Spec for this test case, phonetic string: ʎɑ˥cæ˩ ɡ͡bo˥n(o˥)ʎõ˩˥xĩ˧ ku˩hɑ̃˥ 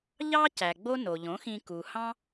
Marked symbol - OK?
no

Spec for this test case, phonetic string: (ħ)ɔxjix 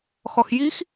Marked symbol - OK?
no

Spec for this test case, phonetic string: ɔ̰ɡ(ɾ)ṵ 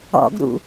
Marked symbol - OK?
yes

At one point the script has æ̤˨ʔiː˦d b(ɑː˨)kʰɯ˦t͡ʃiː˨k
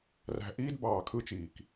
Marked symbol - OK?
yes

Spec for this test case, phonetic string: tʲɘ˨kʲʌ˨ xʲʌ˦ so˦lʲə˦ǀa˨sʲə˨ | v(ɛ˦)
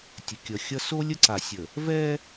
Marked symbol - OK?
yes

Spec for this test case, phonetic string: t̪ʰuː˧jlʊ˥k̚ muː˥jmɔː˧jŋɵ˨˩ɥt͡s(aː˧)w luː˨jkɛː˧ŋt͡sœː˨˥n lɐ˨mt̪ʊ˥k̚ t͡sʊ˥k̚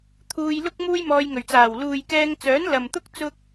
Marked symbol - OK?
no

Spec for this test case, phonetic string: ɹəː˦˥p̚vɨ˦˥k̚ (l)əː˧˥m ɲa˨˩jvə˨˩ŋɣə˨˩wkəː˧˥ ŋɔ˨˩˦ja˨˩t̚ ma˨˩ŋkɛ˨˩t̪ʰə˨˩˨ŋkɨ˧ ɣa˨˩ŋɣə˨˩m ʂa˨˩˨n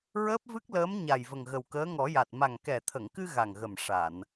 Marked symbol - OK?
yes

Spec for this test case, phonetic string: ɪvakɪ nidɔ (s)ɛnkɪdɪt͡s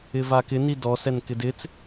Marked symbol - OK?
yes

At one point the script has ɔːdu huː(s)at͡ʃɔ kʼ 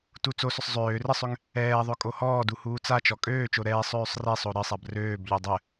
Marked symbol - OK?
no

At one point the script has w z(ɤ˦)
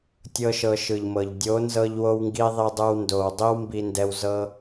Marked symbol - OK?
yes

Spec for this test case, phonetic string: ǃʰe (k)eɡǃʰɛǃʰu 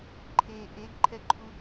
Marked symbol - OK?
no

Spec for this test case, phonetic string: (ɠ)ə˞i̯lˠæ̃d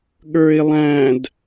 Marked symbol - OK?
yes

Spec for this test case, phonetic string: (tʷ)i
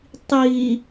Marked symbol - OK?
no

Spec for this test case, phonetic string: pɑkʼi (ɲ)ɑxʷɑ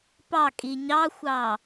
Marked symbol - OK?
yes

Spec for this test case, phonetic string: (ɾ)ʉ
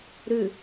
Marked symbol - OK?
yes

